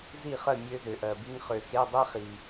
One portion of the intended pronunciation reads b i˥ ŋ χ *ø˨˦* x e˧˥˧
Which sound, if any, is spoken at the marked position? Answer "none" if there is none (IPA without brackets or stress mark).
ø˨